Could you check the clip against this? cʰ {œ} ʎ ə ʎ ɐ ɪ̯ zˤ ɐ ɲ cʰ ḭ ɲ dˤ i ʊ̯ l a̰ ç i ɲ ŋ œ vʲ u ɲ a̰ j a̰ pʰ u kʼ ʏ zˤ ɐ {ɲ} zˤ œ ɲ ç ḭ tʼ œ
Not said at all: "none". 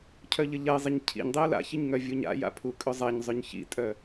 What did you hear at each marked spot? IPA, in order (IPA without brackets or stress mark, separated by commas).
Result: œ, ɲ